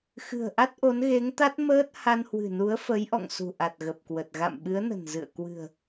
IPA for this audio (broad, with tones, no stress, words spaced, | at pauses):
xɨ̤˨˩ə̯ʔa˦˥t̚ʔo˨˦n ɣe˨˦ŋt̪a˦˥t̚məː˦˥t̚ ha˧nhwɨ̤˨˩nu˨˦ə̯ fə˨˦jʔɔ̰˧˨ŋ sṳ˨˩ʔa˨˩t̚ɣə˨˩p̚kwə˨˩t̚ ɣa̰˧˨mɓɨ˨˦ə̯nə̤˨˩n zɨ̰˧˨ə̯ kwɨ̤˨˩ə̯